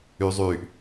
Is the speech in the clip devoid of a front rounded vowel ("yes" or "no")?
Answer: no